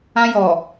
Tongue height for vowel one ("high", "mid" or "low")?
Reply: low